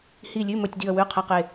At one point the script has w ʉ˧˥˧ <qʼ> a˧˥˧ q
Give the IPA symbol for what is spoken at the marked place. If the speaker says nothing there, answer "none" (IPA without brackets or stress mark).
qʰ